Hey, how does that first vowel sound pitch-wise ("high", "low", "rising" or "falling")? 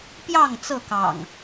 falling